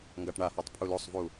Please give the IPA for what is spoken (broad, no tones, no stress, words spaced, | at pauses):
ŋɡaʈɳahatˤ pʰulosˤvu